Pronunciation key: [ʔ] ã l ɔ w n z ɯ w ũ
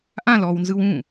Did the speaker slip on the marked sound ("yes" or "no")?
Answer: no